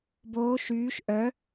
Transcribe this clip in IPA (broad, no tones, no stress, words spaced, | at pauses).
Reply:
boː ʃyːʃ ʔœ